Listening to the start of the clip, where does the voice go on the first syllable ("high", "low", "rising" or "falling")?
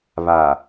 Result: low